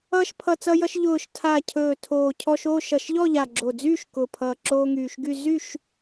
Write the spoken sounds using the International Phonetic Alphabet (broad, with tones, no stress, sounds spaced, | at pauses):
ʌː˧ ʃ pʰ ʌ˨˩ t͡s ʌ˧ j ʌ˧ ʃ ʎ ʊː˨˩ ʃ tʰ a˨˩ cʰ ɵː˨˩ tʰ oː˨˩ cʰ ɔ˧ ʃ oː˥˨ ʃ ʌ˨˩ ʃ ʎ ɔ˥˨ ʎ a˨˩ ɡ͡ǁ o˨˩ d͡z yː˥˨ ʃ k ʊ˨˩ pʰ ʌː˨˩ ǁ oː˧ ŋ yː˨˩ ʃ ɡ y˥˨ z y˥˨ ʃ